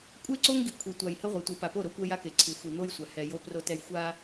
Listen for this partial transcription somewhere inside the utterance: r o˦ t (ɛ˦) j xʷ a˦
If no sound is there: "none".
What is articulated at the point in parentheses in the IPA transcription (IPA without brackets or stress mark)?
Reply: ɛ˦